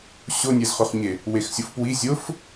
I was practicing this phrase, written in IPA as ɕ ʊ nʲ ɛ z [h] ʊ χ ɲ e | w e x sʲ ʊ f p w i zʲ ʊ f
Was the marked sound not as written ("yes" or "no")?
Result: yes